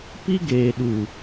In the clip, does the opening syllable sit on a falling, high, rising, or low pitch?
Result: high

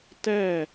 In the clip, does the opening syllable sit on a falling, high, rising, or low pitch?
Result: falling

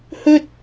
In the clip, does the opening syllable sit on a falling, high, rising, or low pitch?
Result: high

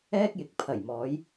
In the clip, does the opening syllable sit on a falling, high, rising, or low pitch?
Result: high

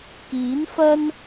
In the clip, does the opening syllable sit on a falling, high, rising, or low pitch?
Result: rising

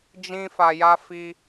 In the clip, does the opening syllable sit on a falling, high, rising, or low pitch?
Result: high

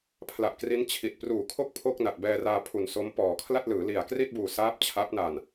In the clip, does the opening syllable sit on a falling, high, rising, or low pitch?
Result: low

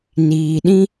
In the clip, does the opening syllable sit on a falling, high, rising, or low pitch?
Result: low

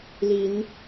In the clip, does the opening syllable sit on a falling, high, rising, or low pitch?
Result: rising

